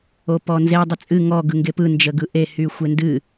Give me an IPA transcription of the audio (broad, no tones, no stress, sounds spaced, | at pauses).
o p ɔ n z e dˤ ə t͡sʼ ɨ ŋ ɔ ɡ ɯ ŋ ɡ e p ɯ n d͡ʒ ə ɡ ɯ ʔ e h y xʷ e n d ɨ